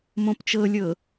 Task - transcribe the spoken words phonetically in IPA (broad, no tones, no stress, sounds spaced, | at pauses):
m õ p t͡ʃ ɤ lʲ ɤ